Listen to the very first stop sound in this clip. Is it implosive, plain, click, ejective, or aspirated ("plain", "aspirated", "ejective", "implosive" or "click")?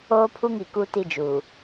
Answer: aspirated